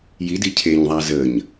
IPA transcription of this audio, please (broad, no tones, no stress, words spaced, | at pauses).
jidi cʰeɲðˤa zəɲ